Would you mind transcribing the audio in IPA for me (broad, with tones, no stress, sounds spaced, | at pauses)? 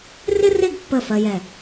r ɪ˥ r ɪ˥˧ ɡ pː ə˧˩ f ɜ˧ j ɛ˧˩